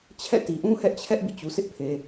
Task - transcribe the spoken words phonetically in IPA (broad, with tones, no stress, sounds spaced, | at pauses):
t͡ɕʰ ɛ̰˦˨ t i˨ ʔ ũ˦ h ɛ˦ ʔ t͡ɕʰ ɛ˦ ʔ b ḭ˦˨ t͡ɕ u˨ s ɪ˦ ʔ pʰ e˨